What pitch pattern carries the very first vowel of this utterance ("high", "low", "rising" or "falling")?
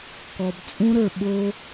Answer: low